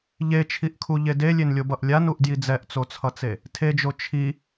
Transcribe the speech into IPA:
ʎ e t͡ʃʰ i ʔ kʰ u ʎ e d e lʲ e n lʲ o b ʌ ʔ lʲ a n u ʔ d j i d͡z ɛ ʔ t͡s o t͡sʰ ʌ t͡s e | tʰ e d͡ʒ o t͡ʃʰ i

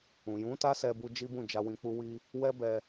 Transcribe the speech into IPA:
ũ˨ j ũ˨˦ t a˦ s ɛ˧ b u˧ d͡ʒ i˦ b ũ˦˨ d͡ʒ a˧ w ĩ˧ k͡p u˦ w i˦ | w ɛ˦ b ɛ˧

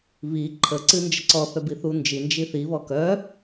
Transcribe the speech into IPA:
β i ǃʰ ə ǀ ɨ n d͡ʒ ə ǀ ɔ θ œ b i θ u n d͡ʒ i n d͡ʒ i θ i β ɔ k œ

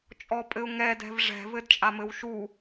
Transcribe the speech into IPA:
t͡ʃʼ ɔ pʼ ɘ ʊ̯ ŋ ɛ d ɛ̤ v ʐ ɛ̤ v ɘ d t͡ʃʼ a m ɘ w ʃ u

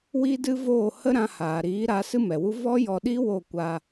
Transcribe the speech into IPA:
w i˦ d ɨ˦ v oː˦˨ h ə˦ ɾ ã˧ h aː˨ ɾ iː˨˦ ɾ a˨˦ s ɨ˦ m ɛ˨ w u˦ v ɔ˦ j ɔ˧ ɗ i˦ w o˦˨ kʷ a˧

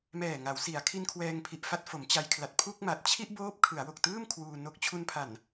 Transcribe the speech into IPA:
m ɛː˨˩ ŋ a˩˦ w s i˩˦ a̯ kʰ i˧ n kʰ w ɛː˧ ŋ pʰ i˨˩ ʔ f a˥˩ t̚ f o˩˦ m t͡ɕ a˧ j kʰ l a˨˩ t̚ pʰ u˥˩ k̚ m a˨˩ t̚ t͡ɕʰ i˥˩ ʔ b oː˦˥ p̚ kʰ ɯ˩˦ a̯ w o˨˩ k̚ t ɯː˥˩ m kʰ w uː˧ n o˦˥ k̚ t͡ɕʰ u˧ n pʰ a˨˩ n

